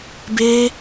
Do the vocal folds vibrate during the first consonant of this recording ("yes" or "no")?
yes